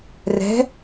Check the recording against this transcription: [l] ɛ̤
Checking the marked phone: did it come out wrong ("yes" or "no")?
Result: yes